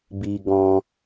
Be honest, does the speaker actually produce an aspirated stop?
no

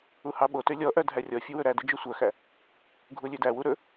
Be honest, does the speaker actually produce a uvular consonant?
no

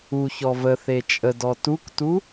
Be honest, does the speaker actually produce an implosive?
no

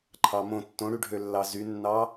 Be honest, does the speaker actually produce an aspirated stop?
yes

